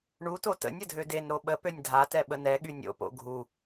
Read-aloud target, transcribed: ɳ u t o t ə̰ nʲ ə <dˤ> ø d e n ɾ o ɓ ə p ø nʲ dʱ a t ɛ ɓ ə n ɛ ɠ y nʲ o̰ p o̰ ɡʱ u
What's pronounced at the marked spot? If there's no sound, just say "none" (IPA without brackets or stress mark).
dʱ